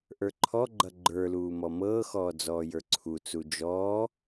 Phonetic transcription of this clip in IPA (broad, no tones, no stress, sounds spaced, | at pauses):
ʔ ə˞ ǃʰ ɔ ɡ͡ǃ ʌ ɡ͡ǃ ə˞ l uː m ɔ m ɤː x ɔː d͡z ɔː j ə˞ ǀʰ u t͡s u d͡ʒ ɔː